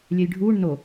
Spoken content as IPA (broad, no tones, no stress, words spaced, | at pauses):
lʲɛjɖʱuːɳ no